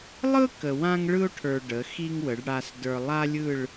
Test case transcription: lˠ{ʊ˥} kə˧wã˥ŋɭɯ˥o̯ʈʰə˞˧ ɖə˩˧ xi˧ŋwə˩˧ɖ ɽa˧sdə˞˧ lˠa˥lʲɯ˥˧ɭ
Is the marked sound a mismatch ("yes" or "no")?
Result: yes